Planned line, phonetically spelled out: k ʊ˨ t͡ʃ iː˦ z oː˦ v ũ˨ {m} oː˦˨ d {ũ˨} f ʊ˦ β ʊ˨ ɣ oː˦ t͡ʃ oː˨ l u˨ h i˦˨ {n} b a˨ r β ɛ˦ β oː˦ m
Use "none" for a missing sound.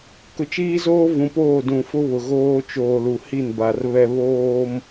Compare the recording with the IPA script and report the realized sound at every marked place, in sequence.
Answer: p, ũ˨, n

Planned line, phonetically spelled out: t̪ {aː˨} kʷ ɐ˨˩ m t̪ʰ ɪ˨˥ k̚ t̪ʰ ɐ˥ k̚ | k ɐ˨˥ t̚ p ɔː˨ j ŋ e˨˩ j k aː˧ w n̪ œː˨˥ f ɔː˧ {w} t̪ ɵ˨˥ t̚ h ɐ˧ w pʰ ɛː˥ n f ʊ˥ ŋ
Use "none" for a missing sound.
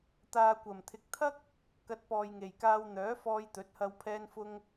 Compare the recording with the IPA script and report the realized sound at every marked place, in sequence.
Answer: aː˨, j

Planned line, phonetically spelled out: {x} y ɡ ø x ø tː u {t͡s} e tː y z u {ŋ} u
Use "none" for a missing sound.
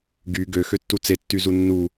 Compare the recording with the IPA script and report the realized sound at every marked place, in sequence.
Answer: ɡ, t͡s, nː

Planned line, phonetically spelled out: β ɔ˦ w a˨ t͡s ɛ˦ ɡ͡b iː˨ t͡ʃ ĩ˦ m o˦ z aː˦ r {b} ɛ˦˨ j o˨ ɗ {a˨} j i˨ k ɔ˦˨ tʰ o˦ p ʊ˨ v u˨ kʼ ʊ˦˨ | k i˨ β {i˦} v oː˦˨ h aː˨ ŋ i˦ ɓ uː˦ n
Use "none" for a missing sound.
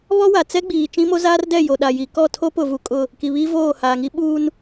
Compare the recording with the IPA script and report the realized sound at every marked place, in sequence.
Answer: d, a˨, i˦

